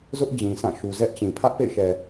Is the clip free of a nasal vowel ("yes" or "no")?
no